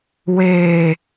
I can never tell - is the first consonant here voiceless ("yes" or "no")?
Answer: no